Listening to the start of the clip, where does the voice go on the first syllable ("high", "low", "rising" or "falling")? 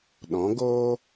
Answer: rising